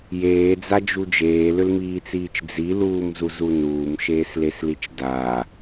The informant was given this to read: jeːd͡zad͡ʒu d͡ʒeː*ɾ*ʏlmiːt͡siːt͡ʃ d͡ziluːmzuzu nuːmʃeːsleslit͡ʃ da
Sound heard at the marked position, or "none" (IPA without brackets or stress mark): l